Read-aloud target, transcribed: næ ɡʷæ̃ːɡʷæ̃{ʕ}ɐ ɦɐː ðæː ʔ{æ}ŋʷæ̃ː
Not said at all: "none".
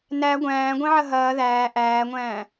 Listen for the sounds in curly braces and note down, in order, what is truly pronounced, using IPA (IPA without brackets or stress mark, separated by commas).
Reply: ʕ, æː